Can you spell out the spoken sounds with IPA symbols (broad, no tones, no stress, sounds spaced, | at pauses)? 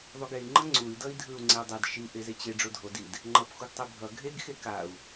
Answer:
ðˤ u ɡ e i̯ ŋ͡ǃ ʌ ŋ͡ǀ u i̯ d ʌ i̯ dʱ ɯ u̯ ŋ͡ǀ e u̯ dˤ ɛ d ʃ i ʔ e z e t͡ɕ e ɖ͡ʐ o dʱ o d i d | ŋ͡ǃ ʌ p x u ɡ tˤ e bʱ ʌ ɡʱ e ɡ x e k a u̯